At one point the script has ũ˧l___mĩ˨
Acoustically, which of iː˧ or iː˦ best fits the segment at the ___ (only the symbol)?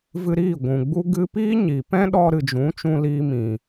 iː˧